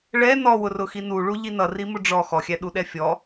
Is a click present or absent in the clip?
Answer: absent